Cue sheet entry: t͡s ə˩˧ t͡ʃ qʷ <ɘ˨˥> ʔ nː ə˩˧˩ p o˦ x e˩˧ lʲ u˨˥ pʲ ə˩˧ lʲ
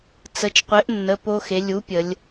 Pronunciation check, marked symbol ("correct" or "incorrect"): correct